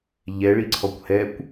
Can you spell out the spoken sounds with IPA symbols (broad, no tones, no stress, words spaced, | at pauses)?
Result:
ʎɛɭiǀʰɔkʷ hɛkʷ